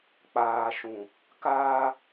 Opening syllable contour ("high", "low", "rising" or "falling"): low